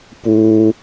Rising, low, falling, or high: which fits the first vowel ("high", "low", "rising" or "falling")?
high